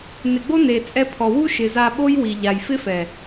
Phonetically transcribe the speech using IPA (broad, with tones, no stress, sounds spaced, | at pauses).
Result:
n ɪ˨ ɡ͡b o˦ n e˨ t͡sʼ ɛ˧ pʰ ɔ˨ w u˦ ʃ ɪ˨ z a˧ ɓ o˦ j w i˨ ʎ a˨ j f ɪ˦ f ɛ˨